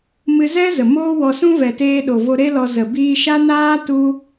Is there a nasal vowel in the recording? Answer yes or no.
yes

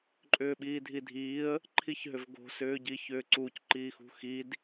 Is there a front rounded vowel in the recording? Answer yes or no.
yes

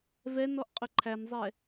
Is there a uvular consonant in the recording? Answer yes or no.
yes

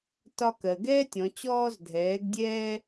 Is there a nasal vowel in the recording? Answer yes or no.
yes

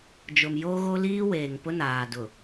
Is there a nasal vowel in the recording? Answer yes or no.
no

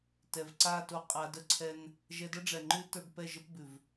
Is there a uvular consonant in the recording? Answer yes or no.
yes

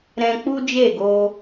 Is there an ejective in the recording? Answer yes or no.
no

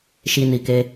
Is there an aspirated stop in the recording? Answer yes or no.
no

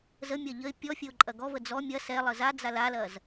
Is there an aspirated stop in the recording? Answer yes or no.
no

